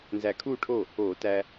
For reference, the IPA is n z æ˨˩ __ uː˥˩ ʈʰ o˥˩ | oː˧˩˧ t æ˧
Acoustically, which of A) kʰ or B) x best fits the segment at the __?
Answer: A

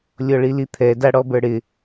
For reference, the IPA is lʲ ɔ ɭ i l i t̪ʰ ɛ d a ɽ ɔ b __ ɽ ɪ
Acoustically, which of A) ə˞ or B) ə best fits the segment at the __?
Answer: A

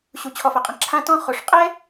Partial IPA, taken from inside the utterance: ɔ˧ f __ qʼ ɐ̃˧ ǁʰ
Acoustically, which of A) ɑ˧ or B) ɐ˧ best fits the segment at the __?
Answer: B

